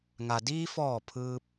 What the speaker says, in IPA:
ŋ a˩ d iː˧ f ɔː˧˩ pʰ ɯː˧ p̚

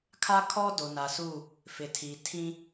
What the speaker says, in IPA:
kʰ a˦ kʰ ɔ˦ d o˨ n a˨ s u˦˨ | f ɪ˨ tʰ iː˨ tʰ ĩ˦

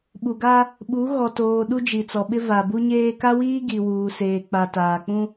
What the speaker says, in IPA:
ɓ u˨ ɡ a˦ | ɓ u˨˦ ɣ ɔ˨ t oː˨ ɗ u˦ d͡ʒ i˨ t͡s ɔ˨ ɓ ɪ˦ v a˨ b u˦ ɲ eː˦ k a˦ w iː˦ ɡ i˨ w uː˨ s eː˨ k͡p a˨ t aː˨ k͡p ũ˦

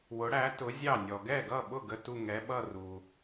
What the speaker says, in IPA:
w ʊ˨˥ ɽ æ˨˥ t ʊ˨˥ zʲ ɑ˥˩ nʲ ɔ˨ ɡ ɛ˥˩ ɡ ʌ˥˩ ɓ ʊ˥˩ ɡ ə˥˧ t u˥˧ ŋ ɛ˨˥ ɓ ʌ˥˧ r u˨

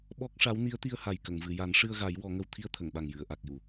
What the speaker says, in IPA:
ɓ ɔ˦˥ k̚ ʂ a˧˥ w n i˧˥ ə̯ t̪ i˧ ə̯ h a˨˩ j k ə˨˩˨ ŋ v ɨ˨˩˨ j a˨˩˦ n ʂ ɨ˧ ə̯ ɣ a˨˩˦ j w ɔ˨˩˦ ŋ ə˧ w t̪ʰ i˧ ə̯ t̪ʰ ə˨˩˨ ŋ ɓ a˨˩ ŋ j ɨ˨˩˨ ə̯ ʔ a˨˩ k̚ j u˨˩˨

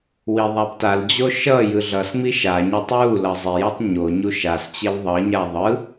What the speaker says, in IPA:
w i ðˤ a b t a l d͡ʑ o ʃ ʌ j ɯ ɮ ʌ s ŋ͡m i ʃ a ɲ a tˤ w u l ʌ zˤ e j ʌ tˤ ɲ o ɲ u ʃ a s t͡ɕ e w ðˤ ʌ ɲ a ðˤ ɯ

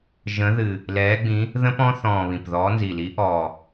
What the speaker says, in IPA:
ʒ ə̃˨˦ ð ɨ˨˩ | l ɛː˨˦ ɡ͡b ĩ˨˦ | ð ə̃˦˥ p ɔ̃˦˥ θ ɔ̃ː˨˩ β ĩ˨˩ p ð ɔː˨˦ n z i˨˩ l i˨˦ ʔ ɔː˨˩

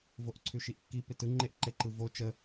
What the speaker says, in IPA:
v o ʔ ǀʰ ʉ ʃ i ʔ kː i p ɪ t ɯ ŋ͡ǃ e ʔ ǃ e ǃ ɯ v o t͡ʃ ə

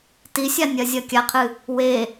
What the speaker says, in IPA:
t i sʲ a nʲ ɐ zʲ ɐ kʲ a qʰ ɨ | w e

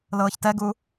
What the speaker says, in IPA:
l ɤː ç t ɛ ɡ u

